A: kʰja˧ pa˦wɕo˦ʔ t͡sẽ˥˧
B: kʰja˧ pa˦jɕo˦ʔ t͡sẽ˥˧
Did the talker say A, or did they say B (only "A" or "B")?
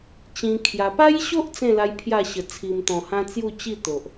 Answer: B